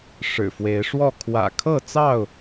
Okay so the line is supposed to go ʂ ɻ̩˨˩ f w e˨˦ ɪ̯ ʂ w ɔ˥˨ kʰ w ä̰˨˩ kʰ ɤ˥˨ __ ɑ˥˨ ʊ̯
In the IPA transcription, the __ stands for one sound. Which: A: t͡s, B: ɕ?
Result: A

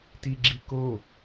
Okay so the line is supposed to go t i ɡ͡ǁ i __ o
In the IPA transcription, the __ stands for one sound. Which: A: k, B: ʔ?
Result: A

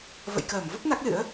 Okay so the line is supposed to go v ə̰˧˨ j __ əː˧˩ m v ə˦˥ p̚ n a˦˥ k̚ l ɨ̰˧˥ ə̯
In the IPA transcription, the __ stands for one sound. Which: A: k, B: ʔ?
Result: A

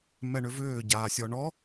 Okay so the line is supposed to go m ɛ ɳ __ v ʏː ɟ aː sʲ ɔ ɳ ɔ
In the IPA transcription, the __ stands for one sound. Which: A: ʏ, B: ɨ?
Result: A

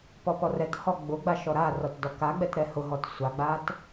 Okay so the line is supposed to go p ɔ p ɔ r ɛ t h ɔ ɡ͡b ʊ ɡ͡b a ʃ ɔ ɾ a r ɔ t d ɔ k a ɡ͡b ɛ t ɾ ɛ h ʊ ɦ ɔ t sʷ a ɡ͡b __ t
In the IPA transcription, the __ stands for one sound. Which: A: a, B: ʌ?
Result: A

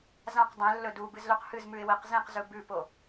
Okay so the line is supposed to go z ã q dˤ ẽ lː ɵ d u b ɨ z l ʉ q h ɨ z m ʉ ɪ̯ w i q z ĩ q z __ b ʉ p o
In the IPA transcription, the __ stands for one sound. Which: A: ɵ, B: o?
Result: A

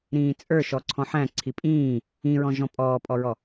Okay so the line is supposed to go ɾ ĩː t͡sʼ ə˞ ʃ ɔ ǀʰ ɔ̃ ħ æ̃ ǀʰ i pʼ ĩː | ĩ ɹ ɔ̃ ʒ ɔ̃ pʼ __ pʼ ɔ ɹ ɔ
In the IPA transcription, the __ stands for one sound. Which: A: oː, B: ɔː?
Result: B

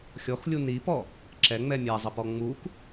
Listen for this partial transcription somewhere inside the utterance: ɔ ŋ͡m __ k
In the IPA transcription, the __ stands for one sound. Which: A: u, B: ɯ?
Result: A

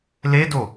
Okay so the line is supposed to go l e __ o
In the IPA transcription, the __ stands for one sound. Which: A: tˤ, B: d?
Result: B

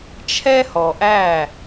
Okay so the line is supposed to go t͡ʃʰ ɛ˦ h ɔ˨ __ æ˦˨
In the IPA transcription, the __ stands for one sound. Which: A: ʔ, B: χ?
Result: A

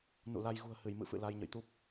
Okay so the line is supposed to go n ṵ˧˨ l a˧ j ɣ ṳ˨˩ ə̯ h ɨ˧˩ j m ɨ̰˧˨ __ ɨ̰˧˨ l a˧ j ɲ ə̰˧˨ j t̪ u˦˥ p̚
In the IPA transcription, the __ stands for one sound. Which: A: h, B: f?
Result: B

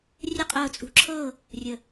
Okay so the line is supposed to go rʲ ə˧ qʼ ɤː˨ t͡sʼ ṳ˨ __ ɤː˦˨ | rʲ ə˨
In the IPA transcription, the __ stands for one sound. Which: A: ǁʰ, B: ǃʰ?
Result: A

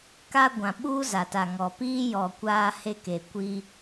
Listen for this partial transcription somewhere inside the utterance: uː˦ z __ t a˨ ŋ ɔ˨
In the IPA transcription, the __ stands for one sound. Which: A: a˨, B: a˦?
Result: A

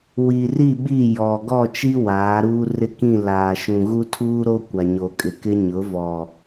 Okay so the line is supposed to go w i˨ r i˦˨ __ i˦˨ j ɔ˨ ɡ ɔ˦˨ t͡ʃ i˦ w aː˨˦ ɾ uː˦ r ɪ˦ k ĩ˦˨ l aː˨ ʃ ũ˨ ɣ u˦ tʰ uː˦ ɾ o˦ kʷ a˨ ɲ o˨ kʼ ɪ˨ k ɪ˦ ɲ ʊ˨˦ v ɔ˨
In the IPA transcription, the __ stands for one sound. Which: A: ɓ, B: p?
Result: A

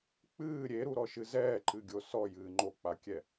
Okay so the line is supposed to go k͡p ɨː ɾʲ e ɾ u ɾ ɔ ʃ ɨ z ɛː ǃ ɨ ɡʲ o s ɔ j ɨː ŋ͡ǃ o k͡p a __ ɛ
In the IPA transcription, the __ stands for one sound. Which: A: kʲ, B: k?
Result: A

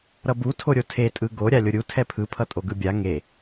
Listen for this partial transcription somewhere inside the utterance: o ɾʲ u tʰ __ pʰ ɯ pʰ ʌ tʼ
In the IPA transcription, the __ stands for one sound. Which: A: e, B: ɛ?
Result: B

